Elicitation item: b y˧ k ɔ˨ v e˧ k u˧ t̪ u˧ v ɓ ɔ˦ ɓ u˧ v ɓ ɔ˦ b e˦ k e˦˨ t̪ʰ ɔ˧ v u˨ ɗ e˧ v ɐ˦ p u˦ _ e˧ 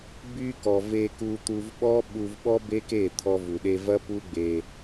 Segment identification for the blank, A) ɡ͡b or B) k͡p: A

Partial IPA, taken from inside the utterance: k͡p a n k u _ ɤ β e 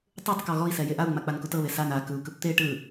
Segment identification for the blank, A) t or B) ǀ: A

